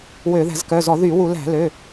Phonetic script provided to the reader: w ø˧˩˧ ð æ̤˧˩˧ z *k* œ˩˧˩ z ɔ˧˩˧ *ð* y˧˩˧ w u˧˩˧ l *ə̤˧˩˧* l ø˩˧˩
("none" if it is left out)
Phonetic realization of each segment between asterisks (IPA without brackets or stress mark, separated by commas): k, ð, æ̤˧˩˧